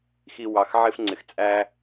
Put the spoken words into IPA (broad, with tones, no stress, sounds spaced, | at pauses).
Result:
x i˧ w ɑ˨ x ʕ ɪ˧ f ŋ͡ǀ ɪ˨ x t͡sʼ æ˦